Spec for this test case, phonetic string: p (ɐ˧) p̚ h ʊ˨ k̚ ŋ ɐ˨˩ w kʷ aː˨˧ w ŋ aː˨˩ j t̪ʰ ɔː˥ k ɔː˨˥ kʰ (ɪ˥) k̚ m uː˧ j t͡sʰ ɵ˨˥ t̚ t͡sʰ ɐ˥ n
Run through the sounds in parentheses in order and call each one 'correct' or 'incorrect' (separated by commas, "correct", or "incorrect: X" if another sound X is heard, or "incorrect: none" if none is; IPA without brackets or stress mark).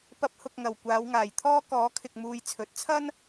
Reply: correct, incorrect: ɪ˨